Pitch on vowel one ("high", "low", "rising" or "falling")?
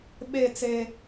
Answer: falling